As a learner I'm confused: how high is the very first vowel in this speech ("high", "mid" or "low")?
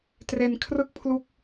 mid